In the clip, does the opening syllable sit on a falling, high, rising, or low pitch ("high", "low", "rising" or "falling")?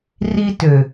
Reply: high